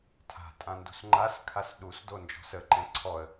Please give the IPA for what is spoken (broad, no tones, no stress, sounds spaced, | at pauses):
tʰ a̤ tʼ ã n d ṳ s ŋ͡ǃ a s kʰ a s ɗ u s d o n d͡ʒ ɔ̤ s ə ǃ ɛ̃ ǀʰ ɔ ə̯